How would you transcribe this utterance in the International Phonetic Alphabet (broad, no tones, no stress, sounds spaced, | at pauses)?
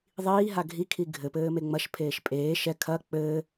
ðˤ iː ɦ a ɡʱ i kʰ i ɡʱ ɘ p ɘː m e ŋ͡m ɐ ʃ pʰ eː ʃ pʼ eː ʃ ɛ kʰ ɐ k͡p ɘː